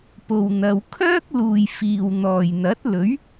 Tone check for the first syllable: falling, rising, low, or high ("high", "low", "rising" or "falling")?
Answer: low